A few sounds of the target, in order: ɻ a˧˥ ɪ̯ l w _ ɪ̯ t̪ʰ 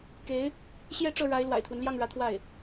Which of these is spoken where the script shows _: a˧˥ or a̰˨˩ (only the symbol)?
a̰˨˩